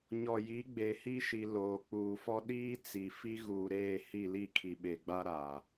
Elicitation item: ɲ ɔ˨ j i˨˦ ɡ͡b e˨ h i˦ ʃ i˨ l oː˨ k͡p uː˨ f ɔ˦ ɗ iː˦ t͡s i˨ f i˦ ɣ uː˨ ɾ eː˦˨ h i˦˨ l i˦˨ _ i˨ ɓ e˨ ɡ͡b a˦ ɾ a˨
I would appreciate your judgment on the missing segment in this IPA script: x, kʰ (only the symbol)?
kʰ